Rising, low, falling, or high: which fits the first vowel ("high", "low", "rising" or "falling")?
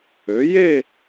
rising